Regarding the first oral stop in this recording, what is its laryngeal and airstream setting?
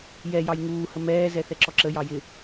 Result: click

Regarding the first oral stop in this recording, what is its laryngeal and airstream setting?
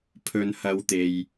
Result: aspirated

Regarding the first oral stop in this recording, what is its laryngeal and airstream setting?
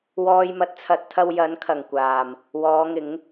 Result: plain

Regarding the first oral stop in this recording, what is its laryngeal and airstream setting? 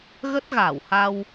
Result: plain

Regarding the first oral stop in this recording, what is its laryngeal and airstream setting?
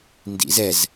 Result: plain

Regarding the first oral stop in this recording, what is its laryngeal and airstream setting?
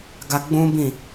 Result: plain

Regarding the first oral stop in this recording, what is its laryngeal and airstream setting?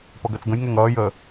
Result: plain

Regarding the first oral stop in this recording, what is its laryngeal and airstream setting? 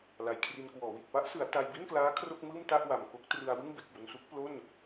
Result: aspirated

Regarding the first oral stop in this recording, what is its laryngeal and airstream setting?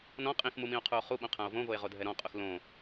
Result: ejective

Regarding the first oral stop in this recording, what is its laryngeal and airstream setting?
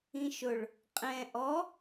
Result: ejective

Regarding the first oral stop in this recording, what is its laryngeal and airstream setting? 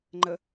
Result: click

